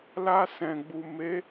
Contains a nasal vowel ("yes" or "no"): yes